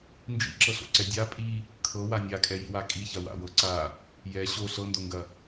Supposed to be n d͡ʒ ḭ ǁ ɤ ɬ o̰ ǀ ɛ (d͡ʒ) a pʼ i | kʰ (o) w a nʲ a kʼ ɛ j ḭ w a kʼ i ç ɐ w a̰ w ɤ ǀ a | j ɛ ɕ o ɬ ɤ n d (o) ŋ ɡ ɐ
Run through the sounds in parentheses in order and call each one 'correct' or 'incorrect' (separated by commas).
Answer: incorrect, incorrect, correct